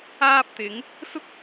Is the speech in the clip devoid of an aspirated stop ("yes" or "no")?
yes